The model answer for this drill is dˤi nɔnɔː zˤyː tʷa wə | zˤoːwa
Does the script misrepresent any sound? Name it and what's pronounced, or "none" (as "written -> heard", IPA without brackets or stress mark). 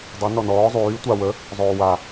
none